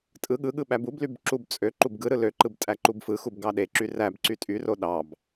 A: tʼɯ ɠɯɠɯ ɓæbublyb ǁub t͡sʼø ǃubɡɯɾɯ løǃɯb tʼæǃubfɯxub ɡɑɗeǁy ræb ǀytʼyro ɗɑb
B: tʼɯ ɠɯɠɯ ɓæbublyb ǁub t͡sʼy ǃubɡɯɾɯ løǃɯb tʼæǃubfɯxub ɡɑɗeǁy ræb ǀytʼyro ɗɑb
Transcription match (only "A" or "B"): A